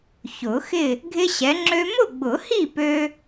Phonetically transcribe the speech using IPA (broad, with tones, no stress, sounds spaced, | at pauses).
ç ʊ˨˩˦ x ɪ˥˨ | ɡʱ ɪ˦ ɕ ɛ˨˦ ŋ͡ǁ ø˦ m ʊ˥˨ ɡ͡b ʊ˨˩˦ h i˥˨ p ø˦